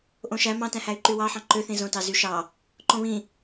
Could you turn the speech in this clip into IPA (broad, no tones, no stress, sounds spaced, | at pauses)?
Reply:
ʔ õ ʃ æ m ɑ̃ t æ̃ h æ y̯ ǃ y w ɑ ħ ɑ̃ ǃ ø θ ĩ z õ t ɑ z y ʃ ɑ | ǃ õ β ĩ